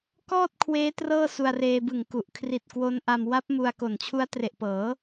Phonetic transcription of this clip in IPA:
k ɔː˥˩ t̚ kʰ w eː˦˥ t r ɤː˥˩ s u˧ a̯ r eː˧ b ɯ˨˩ ŋ k u˨˩ ʔ kʰ r i˨˩ t̚ k w o˦˥ n ʔ a˧ m w a˦˥ p̚ m u˧ a̯ k o˨˩ n t͡ɕʰ u˦˥ a̯ t r e˨˩ ʔ p ɤː˩˦

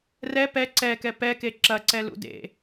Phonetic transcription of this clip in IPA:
r ɛ p ɛ ǀ ɛ k ɛ p ɛ k e ǁ ɐ ǀ ɛ l ṵ d ḛ

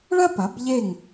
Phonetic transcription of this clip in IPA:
ɭ ɐ˦ p ɐ˩˧ b ʎ e˧˩ ŋ

